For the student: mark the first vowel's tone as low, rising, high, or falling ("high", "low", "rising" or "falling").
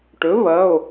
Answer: rising